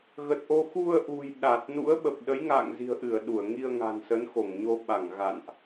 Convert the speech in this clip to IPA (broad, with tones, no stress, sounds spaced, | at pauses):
ɣ ə˨˩ t̚ ʔ o˧ x u˧ ə̯ ʔ ṳ˨˩ j ɗ a˨˩ t̚ n ṵ˧˥ ə̯ ɓ ə˨˩ p̚ ɗ ə˨˦ j ŋ a̰ː˧˨ ŋ z i̤˨˩ ə̯ ʔ ɨ˧˩ ə̯ ɗ u˧˩ ə̯ ŋ i˧ ə̯ ŋ a̤˨˩ n s ə˨˦ n x o˧˩ ŋ ɲ o˧ ɓ a˧˩ ŋ ɣ a̰˧˨ n ʔ